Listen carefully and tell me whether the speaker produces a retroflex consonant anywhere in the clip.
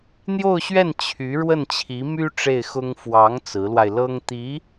yes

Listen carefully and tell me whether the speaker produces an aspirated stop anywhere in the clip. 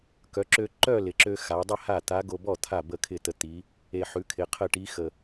yes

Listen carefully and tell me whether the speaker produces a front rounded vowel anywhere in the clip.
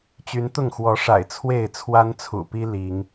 yes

